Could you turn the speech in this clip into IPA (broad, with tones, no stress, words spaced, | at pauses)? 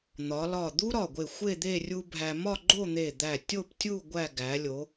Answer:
n̪ɒ˩˧lɒ˧˩ d̪u˥ɾɒ˧˩ɡʷe˧˩ xʷe˥˧d̪e˥˧ rʲu˧ bʱæ˧ mɒ˥˧ ɡ͡ǃo˥˧n̪e˧˩ d̪æ˧˩tʲo˥˧ptʲu˥˧ ɡʷæ˥˧ ɡæ˩˧lʲo˩˧